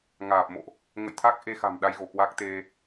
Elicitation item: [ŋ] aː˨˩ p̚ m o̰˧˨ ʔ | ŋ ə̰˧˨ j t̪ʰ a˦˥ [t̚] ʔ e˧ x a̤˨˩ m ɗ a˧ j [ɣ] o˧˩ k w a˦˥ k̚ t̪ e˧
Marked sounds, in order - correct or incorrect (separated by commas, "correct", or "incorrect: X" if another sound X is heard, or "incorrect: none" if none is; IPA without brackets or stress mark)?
correct, incorrect: k̚, correct